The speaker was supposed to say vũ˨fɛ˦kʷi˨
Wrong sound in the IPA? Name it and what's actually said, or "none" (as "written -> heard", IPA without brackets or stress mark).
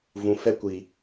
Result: none